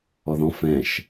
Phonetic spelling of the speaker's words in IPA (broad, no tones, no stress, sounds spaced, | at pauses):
ɔ ð ɔ̃ f ɛ̃ ʃ